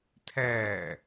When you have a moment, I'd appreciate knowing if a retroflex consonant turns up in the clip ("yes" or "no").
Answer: no